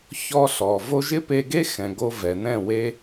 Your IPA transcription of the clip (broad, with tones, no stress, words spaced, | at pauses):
çɔ˧ ɬɔ˨ vo˧ʒɪ˦pe˧ɡe˦ xɛ̃˨ɡo˧ vɛ˨nɛ̃˦˨we˦